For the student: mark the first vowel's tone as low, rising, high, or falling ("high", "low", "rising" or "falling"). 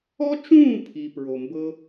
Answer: high